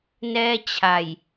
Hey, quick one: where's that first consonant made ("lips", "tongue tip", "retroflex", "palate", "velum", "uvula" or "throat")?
tongue tip